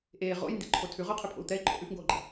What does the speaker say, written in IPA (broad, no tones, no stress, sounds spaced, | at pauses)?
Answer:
ʔ eː ʁ o̰ j n d ḭ ǃʰ o tʰ ʉ ʁ ʊː qʰ ʉ pʰ o̰ u̯ t̪ ɛ i̯ ǃʼ o̰ ʔ ʉ f ŋ ɡ oː ɡ͡ǃ ḭ